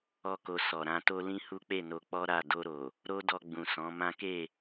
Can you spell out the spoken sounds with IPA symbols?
ɔ˦ k o˧ s ɔ˨ ɾ ã˧ t o˦ l ĩ˦ h u˦ k͡p e˦˨ n o˧ k͡p ɔ˦ ɾ a˦˨ d o˧ ɾ o˨ | ɾ o˦ d ɔ˧ ɡ͡b ũ˨ s ɔ̃˨˦ m ã˦ k e˦˨

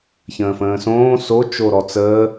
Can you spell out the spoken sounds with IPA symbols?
ç ə̃ː f ə̃ː s õː s o t͡ʃ o ɾ ɔ t͡s əː

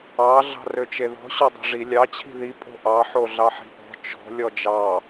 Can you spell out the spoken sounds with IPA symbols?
ɑ ɮ ɑ̤ r ø t͡ʃ e ð ɔ̤ ɕ ɔ dˤ e̤ ʐ i lʲ ɑ t͡ɕʰ i̤ ð i pʼ o̤ ʔ ɑ ħ o ɮ ɑ ħ i̤ ʔ ɔ̤ t͡ʃ ɔ̤ lʲ ɔ d͡ʒ ɑ

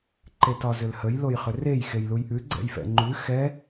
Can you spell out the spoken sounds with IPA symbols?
ǃ e t ɒ z ʏ l h ə j l o j χ ʏ r e j x e j l u j ʔ ʉ ɡ͡ǀ ɛ̰ j f ɛ̰ ŋ͡ǃ ʉ x ɛ

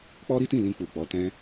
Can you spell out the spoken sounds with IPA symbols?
k͡p ɔ˦ ɾ i˦ t ĩ˦˨ l ĩ˧ k͡p u˨ k͡p ɔ˨˦ t ɛ̃˦

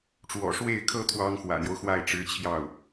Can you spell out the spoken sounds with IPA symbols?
ʈ͡ʂ w ɔ̰˨˩ ʂ w e˥˩ ɪ̯ kʰ ɤ˥ t̪ʰ w ɑ˥ ŋ x w ä̰˨˩ n̪ j o˦ ʊ̯ x w a˥˩ ɪ̯ ʈ͡ʂ ɻ̩˧˥ t͡ɕʰ j ɑ˥˩ ʊ̯

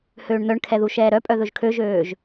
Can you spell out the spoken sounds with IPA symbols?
h øː ɳ n̪ œ ɳ kʰ ɛ ð u ʃ ɛː ɾ œ pʼ œ ð ɵ ʒ kʰ ø ʒ øː ʒ

